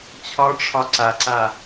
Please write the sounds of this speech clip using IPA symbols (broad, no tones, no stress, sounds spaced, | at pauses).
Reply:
t͡ɕʰ ɒ ʈ͡ʂʰ ɒ ǀ a ǀ a